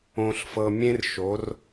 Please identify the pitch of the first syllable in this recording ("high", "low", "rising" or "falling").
low